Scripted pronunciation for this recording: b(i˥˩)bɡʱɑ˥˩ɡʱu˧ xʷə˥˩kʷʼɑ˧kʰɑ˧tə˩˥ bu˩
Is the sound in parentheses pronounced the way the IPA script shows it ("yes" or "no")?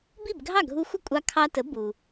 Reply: yes